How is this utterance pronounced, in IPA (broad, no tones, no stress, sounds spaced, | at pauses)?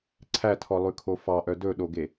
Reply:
ǀʰ æ tʰ ɔ lˠ ʉ kʰ o f ɑ ʔ œ d ɵ ɗ o ɡ e